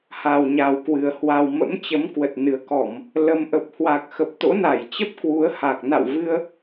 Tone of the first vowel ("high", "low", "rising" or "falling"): low